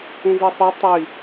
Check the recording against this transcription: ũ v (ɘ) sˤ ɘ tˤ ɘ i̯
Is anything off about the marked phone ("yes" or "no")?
yes